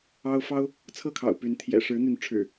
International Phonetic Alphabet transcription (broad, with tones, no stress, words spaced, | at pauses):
ɑ˦ʊ̯ fɑ˦ʊ̯ | t͡sʰɤ˥˨kʰɑ̰˨˩ʊ̯py˨˦nt̪ʰjɛ̰˨˩ ʂɻ̩˨˦n̪y˨˦nʈ͡ʂʰɻ̩˨˩